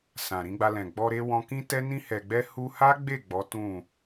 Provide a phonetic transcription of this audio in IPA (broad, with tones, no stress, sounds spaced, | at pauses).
s ã˨ ɾ ĩ˨˦ ɡ͡b a˧ l ɛ̃˨ ɡ͡b ɔ˧ ɾ e˧ w ɔ̃˧ k ĩ˦ t ɛ˦ n ĩ˧ h ɛ˨ ɡ͡b ɛ˧ h u˧ h a˦ ɡ͡b e˦˨ ɡ͡b ɔ˨˦ t ũ˦˨